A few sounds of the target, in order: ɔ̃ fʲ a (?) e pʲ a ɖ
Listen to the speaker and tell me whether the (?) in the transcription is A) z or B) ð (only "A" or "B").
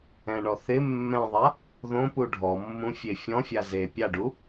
A